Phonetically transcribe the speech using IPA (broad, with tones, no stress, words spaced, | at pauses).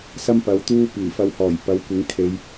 sɐ˥mpɐ˨˥wt̪uː˥ piː˨˩fɐ˧whɔː˨˩j pɐ˨˥wkʷɪ˨˥ŋ kʰe˨˧j